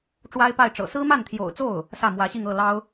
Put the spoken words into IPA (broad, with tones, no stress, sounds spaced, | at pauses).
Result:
ʈ͡ʂ w a˥ ɪ̯ p a˥˩ ɪ̯ ʈ͡ʂ ɤ̰˨˩ s ɹ̩˥ m a˥˩ n t̪ʰ j o̰˨˩ ʊ̯ t͡s o˥˩ ʊ̯ | s ä˥˩ m w ä˧˥ ɕ i˥˧ ŋ ɤ˥˩ l ɑ˥ ʊ̯